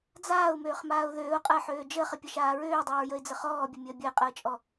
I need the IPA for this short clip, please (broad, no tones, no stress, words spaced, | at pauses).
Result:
d͡zaːʊ̯møːχmaːʊ̯ ðøːʊ̯qʼəːħøː d͡ʒəːχəpʲəʃaː ɹøːdˤəːɹjəɪ̯d͡zə χɔːbʲəmʲəː bʲəɪ̯qʼəːt͡ʃʼɔ